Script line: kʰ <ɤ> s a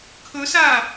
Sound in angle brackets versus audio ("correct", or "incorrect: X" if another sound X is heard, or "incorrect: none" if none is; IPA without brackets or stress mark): incorrect: ɵ